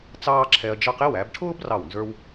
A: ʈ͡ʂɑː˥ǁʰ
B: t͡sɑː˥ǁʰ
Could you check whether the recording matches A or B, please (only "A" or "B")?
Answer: B